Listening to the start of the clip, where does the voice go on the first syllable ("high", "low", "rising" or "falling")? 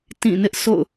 falling